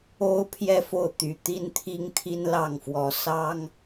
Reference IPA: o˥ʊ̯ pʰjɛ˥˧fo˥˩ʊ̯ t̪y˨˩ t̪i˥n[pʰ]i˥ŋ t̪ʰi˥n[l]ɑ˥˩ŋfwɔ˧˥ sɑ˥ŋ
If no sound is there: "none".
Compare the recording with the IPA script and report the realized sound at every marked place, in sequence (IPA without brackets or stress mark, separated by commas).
t̪ʰ, l